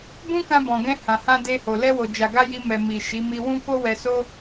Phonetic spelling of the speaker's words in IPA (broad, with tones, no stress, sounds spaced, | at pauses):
b ũ˦ k ã˧ b ɔ̃˨ ɡ ɛ̃˧ h ã˨ h ã˧ d e˧ h o˨ l ɛ˧ w o˨ d͡ʒ a˨ ɡ a˧ j i˧ m ɛ˨ m i˨ ʃ i˨˦ m i˧ w ũ˦ k o˦ w ɛ˧ s o˦